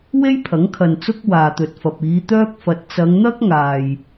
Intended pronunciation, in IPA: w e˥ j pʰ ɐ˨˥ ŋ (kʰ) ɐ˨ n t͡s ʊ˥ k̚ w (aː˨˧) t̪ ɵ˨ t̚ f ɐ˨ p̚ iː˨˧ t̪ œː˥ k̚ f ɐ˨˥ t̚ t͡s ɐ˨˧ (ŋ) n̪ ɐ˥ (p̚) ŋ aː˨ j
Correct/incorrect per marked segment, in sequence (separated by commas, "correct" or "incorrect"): correct, incorrect, correct, incorrect